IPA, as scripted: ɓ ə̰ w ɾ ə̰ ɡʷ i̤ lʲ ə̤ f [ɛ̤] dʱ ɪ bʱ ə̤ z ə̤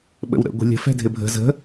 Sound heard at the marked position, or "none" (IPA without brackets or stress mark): ɛ̤